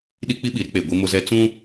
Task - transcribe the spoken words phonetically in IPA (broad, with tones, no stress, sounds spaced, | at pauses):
ɗ i˦ k͡p i˦ ɓ i˨ ɾ ɪ˦ k͡p e˨ ɡʷ i˦ m ʊ˦ z ɛ˦ t͡s ũ˦